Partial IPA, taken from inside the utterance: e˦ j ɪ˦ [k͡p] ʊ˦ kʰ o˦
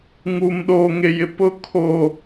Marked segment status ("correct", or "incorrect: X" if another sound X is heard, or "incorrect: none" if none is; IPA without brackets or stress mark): incorrect: p